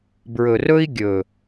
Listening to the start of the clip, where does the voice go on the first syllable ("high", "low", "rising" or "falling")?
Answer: low